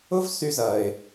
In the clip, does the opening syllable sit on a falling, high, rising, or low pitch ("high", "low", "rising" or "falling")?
high